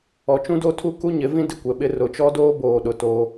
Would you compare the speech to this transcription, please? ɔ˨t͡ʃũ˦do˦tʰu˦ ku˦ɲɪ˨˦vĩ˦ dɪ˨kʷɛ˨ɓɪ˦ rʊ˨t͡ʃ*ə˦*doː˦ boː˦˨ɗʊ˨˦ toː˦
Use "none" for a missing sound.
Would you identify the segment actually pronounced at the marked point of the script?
ɔ˦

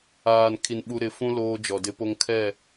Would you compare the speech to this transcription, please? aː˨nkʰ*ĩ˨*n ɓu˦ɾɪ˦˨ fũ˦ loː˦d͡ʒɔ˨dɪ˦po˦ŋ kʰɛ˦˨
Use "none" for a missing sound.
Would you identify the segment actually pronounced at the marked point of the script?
i˨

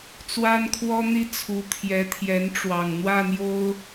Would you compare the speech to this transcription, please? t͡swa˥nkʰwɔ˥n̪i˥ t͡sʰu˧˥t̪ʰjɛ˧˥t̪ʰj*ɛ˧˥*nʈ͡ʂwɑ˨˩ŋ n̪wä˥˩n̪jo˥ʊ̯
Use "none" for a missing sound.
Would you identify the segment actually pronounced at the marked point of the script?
ɛ˧˥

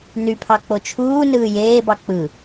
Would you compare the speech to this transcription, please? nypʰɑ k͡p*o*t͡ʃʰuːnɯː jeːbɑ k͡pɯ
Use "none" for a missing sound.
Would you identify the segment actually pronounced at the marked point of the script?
o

